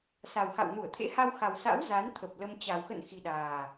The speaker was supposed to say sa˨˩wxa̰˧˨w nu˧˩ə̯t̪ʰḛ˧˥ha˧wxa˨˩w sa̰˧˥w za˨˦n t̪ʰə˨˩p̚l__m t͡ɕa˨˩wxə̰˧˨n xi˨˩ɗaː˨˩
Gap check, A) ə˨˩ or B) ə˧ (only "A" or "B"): B